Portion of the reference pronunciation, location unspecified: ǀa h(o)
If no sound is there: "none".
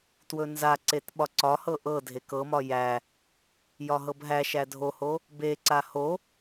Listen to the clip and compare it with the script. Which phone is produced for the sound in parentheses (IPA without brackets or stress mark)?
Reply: o